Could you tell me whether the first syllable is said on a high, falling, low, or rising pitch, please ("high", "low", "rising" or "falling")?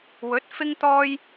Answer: rising